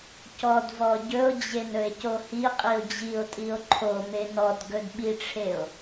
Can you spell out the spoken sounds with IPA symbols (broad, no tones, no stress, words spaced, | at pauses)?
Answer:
cɔdvɔ ɟɵo̯d͡ʑen ɵe̯cohiqʼio̯ d͡ʑio̯tʼio̯ ǃʰome nɔd ɡɵdɓiʈ͡ʂʰeo̯